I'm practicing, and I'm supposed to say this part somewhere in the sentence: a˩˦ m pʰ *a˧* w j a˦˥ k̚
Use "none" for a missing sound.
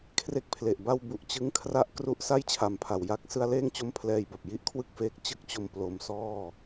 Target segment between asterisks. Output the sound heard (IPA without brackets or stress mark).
a˩˦